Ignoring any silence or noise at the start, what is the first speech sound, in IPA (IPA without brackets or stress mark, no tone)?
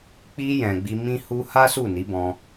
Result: k͡p